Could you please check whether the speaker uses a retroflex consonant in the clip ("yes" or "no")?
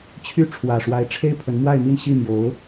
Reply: yes